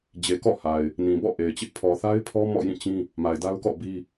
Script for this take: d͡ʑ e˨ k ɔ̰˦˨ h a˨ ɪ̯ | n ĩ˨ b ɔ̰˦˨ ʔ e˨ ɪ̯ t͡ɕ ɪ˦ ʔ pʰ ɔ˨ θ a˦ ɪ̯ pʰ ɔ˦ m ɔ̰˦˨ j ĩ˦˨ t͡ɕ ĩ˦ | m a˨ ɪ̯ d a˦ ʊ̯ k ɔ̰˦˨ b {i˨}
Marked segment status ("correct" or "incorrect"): incorrect